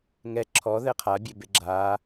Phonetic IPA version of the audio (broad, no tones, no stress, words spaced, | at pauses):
ŋɛ ǁʰɔ ðɛqʰabʲebe ɡ͡ǁa